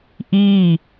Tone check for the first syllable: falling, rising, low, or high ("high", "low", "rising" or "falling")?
falling